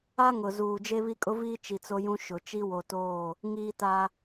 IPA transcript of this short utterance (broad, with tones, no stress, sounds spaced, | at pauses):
a˦ ŋ ʊ˨ z uː˨ d͡ʒ e˦ β i˦ kʼ ʊ˦ v iː˦ t͡ʃ i˨ t͡s o˦ j ũ˦ ʃ ʊ˨ t͡ʃ i˦ w o˨ t oː˦˨ | ŋ iː˦ t a˦